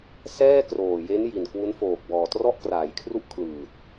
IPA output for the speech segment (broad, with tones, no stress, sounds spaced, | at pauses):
s ɛː˥˩ k r oː˨˩ j e˦˥ n j i˨˩ n k w u˦˥ n f oː˨˩ k̚ b ɔː˨˩ t r ɔ˥˩ ʔ k r aː˩˦ j kʰ r u˥˩ ʔ kʰ l ɯː˨˩ t̚